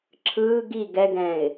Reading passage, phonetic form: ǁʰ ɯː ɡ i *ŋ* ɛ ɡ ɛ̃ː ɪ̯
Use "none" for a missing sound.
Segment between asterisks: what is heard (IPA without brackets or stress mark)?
ɡ